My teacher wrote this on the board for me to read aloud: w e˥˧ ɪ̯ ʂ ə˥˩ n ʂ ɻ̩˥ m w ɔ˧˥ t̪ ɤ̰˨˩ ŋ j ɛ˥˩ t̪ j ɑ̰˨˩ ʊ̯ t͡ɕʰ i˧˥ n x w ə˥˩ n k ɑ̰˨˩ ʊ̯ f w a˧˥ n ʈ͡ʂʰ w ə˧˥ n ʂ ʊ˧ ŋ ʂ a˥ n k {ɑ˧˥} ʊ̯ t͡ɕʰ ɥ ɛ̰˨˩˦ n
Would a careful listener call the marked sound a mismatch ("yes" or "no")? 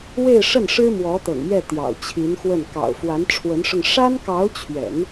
no